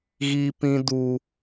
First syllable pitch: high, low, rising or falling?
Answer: high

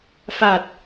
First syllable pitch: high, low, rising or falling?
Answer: low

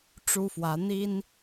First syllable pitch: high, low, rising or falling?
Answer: high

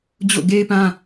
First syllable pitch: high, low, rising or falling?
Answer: falling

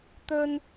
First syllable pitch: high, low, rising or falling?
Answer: high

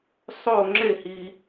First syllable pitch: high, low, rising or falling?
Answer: falling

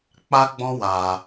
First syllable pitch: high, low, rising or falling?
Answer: high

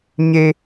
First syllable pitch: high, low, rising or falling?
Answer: high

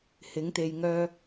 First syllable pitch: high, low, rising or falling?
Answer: rising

